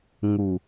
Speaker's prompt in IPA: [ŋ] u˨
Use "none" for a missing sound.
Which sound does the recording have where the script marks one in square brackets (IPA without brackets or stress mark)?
ŋ